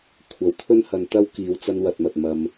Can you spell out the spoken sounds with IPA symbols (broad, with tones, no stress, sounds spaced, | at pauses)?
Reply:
kʷʰ ɐ˨ w t̪ʰ ɵ˥ n h ɐ˧ n t̪ ɐ˥ w k iː˨˧ w t͡s ɐ˧ n w ɐ˨ t̚ m ɐ˨ t̚ m ɐ˧ m